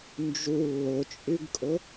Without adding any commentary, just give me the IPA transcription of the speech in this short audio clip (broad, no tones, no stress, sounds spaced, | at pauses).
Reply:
n d͡ʒ u lː ʊ t͡ʃʼ y ɡ kʼ ʊ